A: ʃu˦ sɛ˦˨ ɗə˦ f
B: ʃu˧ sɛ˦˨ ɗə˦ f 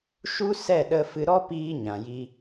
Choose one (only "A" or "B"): A